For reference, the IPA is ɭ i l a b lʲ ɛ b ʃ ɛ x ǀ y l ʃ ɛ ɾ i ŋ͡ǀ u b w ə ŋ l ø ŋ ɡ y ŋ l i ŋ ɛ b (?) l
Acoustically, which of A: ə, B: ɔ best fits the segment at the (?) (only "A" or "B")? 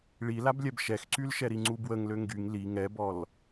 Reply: B